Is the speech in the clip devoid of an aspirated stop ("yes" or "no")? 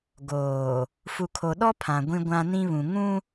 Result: no